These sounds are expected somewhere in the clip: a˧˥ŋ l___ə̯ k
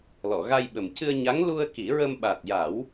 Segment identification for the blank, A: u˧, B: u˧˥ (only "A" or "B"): A